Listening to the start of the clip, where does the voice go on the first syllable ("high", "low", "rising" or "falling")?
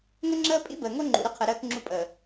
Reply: high